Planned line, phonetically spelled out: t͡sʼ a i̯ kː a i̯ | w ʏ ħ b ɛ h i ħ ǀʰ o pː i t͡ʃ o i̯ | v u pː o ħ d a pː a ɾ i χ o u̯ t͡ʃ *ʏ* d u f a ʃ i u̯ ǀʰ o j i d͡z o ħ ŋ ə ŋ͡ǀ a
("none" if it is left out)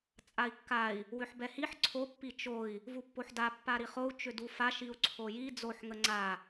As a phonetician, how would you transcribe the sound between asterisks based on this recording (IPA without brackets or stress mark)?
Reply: ʏ